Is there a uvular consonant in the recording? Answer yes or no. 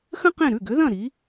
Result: yes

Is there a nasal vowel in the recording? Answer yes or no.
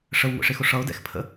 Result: no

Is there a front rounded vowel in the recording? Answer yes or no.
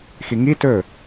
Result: no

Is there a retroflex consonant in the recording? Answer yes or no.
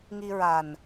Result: no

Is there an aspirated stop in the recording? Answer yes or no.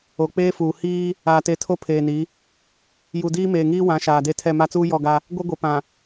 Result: yes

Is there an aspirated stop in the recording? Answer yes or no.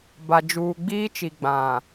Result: no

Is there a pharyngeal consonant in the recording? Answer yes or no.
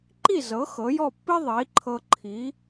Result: no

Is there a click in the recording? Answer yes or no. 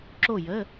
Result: yes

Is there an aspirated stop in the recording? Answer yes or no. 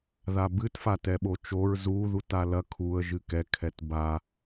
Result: yes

